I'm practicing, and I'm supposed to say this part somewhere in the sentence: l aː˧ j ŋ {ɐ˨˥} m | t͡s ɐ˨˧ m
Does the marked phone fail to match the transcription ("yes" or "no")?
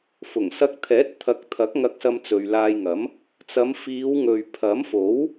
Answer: no